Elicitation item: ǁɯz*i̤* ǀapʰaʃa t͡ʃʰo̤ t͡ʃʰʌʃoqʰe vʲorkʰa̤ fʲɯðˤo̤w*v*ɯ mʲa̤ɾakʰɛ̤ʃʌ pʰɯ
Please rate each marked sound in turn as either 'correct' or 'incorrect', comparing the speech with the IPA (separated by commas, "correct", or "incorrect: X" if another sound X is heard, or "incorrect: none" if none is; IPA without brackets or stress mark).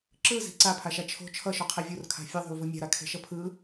correct, correct